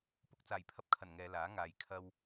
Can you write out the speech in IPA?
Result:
p ʊ˧ k̚ t͡s aː˨˩ j pʰ ɐ˧ p̚ kʰ ɐ˨˩ n ŋ ɛː˨˧ l aː˨˥ ŋ aː˨ j kʰ ɐ˧ w

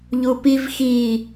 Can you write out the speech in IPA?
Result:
ʎ u p i v x i

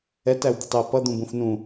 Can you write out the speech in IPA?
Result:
ɛ t æ w d̪ ɪ tˤ ɪ ə̯ p ʌ d̪ ũ b ũ f n ũ

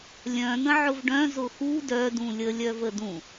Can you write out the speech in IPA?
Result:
lʲ œ̃ n̪ ə̃ ʕ ʊ v ɖ œ̃ z ʊ x u d œ d ũ lʲ ə lʲ œ v ə d ũ

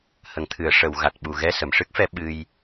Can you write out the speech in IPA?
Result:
h ə˨˩˨ ŋ t̪ʰ ɨ˨˩˨ ə̯ ʂ ə˨˩˨ w ɣ a˨˩ t̚ ɓ u˨˩ ɣ ɛ˧ s ə˨˩˨ m ʂ ɨ˦˥ k̚ f ɛ˧ ɓ ɨ˧ j

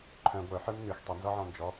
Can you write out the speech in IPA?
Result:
ǃʰ œ̃ ɡʷ œ ħ ə˞ m n ʉ x tˤ ə n z ɔ ʕ ɔ̃ n d͡ʒ ɔ

